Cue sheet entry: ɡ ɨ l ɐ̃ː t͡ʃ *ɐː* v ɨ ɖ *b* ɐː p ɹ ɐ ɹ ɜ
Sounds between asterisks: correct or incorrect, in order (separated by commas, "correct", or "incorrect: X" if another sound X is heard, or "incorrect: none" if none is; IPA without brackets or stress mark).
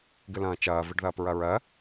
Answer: correct, incorrect: ð